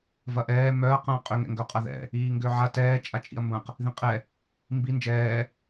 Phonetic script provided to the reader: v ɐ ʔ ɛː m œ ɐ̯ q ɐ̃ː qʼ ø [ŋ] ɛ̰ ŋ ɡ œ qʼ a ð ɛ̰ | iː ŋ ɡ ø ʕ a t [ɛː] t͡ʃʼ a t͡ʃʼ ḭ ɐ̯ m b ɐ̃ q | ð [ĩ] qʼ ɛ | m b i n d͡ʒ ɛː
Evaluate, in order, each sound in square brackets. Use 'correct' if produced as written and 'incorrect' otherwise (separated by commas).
correct, correct, correct